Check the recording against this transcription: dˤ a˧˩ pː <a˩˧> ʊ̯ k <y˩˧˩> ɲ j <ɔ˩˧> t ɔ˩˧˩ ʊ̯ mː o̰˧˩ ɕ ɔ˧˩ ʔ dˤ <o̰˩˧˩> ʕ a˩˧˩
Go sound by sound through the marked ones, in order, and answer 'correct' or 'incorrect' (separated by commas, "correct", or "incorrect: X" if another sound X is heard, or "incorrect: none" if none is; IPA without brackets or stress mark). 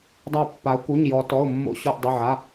correct, incorrect: u˩˧˩, correct, incorrect: o˩˧˩